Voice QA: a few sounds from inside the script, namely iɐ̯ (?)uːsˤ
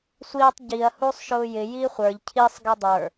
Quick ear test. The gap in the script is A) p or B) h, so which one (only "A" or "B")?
B